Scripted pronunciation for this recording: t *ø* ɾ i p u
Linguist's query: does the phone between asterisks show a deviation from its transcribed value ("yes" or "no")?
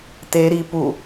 yes